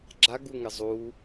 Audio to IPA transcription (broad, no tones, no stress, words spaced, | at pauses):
ɡ͡ǁaɡuŋɪ zˤu